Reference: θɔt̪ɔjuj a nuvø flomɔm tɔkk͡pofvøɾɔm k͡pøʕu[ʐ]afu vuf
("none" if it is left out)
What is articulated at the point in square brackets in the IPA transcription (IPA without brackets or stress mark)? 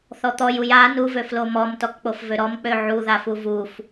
ð